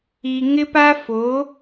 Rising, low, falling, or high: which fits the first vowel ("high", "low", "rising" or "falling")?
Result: low